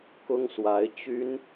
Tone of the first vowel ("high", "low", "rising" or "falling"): high